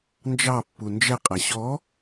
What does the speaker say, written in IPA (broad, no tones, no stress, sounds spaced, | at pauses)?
n d͡ʒ ɑ pː u n d͡ʒ ɛ qʼ æ ɕ ɔ